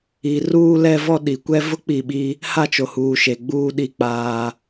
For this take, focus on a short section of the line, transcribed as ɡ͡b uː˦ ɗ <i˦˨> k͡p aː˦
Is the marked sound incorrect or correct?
correct